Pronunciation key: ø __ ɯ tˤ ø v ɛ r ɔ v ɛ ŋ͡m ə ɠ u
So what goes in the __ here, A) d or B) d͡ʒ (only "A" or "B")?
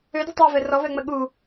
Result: A